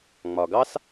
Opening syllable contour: low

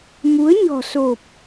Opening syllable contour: rising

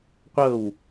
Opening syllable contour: falling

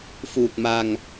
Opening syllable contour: low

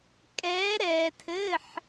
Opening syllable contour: rising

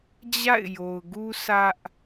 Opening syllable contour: falling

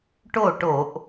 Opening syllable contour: falling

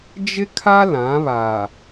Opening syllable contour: high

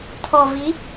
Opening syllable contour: low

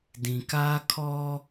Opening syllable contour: low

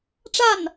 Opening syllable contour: falling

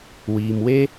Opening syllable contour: low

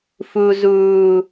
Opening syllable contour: low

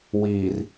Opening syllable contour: low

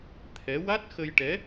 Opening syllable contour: rising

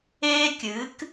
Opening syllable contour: high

